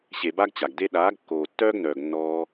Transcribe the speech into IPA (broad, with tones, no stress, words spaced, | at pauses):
ɕe˨ba˧ɡ t͡ɕa˨ɡde˦ ɗaː˨˦ɡ kːoː˨tːœː˦ɡnœː˨ɡ nːɔː˧